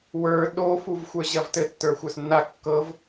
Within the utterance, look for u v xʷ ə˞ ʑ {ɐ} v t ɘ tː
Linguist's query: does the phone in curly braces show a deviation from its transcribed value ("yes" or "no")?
no